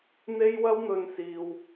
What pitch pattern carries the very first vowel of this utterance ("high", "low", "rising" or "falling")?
high